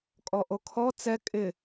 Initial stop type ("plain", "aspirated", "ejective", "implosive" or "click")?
ejective